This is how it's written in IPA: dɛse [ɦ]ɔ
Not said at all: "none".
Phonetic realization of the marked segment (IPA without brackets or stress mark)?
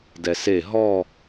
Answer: ɦ